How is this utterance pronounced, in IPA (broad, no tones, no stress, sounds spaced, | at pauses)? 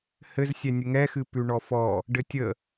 h ɘ z sʲ ɛ nʲ ə ŋ ɛ x ɨ p ʉ ɳ ɔ f ɔ | ɖ ɘ tʲ ə